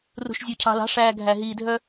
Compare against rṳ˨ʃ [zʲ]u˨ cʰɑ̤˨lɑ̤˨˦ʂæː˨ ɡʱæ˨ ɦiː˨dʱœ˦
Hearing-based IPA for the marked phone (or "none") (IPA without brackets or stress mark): zʲ